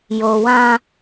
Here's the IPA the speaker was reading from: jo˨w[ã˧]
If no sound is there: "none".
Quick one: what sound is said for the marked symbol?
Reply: ã˧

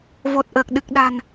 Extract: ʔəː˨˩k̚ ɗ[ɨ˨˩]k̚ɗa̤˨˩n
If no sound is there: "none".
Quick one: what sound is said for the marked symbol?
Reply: ɨ˨˩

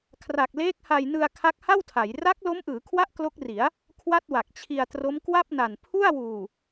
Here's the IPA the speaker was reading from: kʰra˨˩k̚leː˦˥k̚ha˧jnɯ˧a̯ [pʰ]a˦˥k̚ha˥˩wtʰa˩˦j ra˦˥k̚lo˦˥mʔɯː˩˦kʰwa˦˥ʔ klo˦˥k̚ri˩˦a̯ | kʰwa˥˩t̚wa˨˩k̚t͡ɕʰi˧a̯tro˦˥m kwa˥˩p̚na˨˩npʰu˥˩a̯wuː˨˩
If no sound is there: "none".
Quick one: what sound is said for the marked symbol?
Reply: kʰ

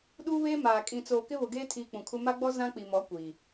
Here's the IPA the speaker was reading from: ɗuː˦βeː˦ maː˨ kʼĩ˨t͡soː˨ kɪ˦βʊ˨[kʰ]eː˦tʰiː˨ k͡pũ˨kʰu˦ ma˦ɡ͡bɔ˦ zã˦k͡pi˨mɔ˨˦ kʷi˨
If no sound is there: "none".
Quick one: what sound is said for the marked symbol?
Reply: ɡ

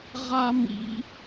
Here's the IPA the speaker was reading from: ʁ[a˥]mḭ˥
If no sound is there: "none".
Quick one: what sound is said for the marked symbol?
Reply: a˥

